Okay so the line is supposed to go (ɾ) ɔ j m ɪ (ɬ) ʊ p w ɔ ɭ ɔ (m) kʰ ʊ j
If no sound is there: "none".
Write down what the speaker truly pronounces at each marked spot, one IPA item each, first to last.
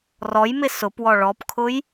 r, s, p

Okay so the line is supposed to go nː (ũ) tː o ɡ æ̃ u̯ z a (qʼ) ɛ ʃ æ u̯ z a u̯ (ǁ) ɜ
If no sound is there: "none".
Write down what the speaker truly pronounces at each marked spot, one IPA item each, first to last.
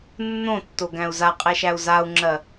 õ, qʼ, ŋ͡ǁ

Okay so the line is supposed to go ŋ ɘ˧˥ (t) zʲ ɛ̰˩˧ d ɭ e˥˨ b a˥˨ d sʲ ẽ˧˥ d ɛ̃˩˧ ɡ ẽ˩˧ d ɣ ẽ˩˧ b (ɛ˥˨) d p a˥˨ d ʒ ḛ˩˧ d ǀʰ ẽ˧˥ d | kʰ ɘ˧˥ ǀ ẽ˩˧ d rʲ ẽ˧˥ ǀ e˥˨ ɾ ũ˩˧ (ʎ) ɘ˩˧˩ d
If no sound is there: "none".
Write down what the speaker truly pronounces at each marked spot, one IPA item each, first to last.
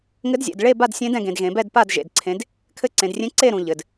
d, ɛ˥˨, ʎ

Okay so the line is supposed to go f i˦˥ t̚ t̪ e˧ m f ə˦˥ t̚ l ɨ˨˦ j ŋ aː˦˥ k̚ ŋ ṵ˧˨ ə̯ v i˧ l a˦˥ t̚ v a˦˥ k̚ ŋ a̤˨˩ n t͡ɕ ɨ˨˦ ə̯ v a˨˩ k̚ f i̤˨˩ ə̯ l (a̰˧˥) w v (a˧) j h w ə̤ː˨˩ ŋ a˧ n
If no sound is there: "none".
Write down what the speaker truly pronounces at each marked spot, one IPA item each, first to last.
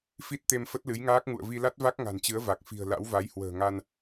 a̰˧˥, a˨˦

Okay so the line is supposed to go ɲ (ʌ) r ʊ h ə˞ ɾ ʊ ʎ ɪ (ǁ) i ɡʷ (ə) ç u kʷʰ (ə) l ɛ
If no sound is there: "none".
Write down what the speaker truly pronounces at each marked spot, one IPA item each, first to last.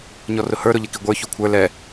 ɔ, k, ə˞, ə˞

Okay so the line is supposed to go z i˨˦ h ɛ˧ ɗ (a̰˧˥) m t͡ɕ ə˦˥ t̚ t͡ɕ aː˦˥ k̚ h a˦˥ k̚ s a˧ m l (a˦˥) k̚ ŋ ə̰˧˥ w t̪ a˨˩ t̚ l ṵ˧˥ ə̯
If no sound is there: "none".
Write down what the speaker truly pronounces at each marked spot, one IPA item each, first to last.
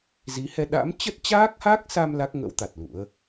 a̰˧˥, a˦˥

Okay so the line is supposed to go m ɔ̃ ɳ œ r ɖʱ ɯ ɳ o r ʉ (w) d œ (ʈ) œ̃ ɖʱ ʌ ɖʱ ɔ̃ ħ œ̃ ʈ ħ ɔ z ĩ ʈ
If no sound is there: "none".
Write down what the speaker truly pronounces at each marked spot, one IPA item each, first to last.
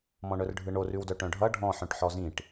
w, ʈ

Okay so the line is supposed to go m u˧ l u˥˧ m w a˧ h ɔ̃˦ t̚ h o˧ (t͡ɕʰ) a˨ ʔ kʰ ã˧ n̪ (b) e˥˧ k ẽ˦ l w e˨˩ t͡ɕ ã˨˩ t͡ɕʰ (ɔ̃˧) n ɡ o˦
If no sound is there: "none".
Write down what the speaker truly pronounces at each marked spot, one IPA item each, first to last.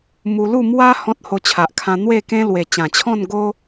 t͡ɕʰ, w, ɔ̃˥˧

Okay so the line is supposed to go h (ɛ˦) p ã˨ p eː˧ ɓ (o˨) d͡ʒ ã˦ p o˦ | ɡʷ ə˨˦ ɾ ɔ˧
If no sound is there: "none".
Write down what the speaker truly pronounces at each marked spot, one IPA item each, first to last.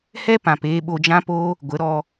ɛ˦, o˧

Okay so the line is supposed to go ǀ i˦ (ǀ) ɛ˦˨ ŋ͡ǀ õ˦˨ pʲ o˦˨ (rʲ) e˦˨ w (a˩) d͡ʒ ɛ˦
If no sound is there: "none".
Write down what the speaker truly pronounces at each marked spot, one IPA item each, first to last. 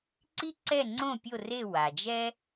ǀ, r, a˩

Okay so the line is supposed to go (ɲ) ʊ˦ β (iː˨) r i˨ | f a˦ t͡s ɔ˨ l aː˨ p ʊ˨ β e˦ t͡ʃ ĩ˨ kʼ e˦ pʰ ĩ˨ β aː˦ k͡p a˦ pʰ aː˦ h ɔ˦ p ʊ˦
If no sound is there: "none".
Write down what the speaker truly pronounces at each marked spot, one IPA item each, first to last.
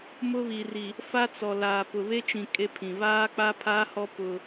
m, i˨

